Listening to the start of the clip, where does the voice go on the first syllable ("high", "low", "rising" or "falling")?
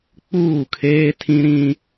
falling